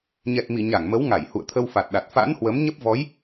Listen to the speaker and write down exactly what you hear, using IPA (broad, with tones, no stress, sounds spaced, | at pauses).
ɲ ɛ˨˩ t̚ m i˧˩ ɲ a˧˩ ŋ m ə˨˦ w ŋ a˧˩ j h ṵ˧˨ ə̯ t̪ʰ ə˧ w f a˨˩ t̚ ɗ a˨˩ t̚ f a̰˧˥ n h w ə˨˦ m ɲ ə˦˥ p̚ v ɔ˨˦ j